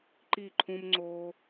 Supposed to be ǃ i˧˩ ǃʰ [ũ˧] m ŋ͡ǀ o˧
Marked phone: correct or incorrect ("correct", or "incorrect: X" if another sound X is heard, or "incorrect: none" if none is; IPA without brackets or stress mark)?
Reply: correct